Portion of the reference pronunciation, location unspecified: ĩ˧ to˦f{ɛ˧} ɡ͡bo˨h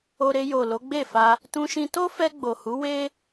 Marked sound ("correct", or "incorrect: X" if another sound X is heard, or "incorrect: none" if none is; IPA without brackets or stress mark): correct